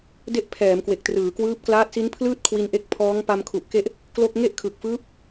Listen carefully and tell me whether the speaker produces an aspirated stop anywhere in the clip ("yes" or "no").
yes